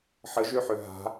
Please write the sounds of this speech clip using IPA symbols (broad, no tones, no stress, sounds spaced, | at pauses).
ħ ə ʒ ø ħ ø ɦ a̤